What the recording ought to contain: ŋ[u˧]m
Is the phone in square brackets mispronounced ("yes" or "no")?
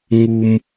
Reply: no